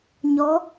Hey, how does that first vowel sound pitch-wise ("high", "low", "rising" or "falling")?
rising